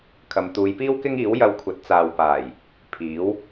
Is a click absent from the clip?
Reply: yes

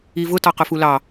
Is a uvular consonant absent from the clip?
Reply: no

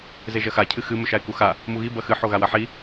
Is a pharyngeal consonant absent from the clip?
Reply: no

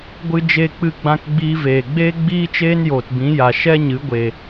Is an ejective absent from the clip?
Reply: yes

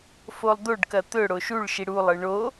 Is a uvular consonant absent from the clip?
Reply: yes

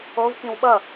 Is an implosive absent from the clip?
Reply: no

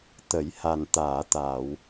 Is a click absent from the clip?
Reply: yes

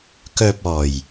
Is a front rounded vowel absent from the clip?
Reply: no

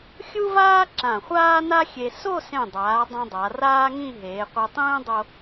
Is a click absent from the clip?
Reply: no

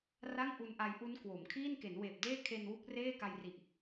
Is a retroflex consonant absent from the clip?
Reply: yes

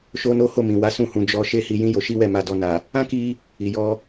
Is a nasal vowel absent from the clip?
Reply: no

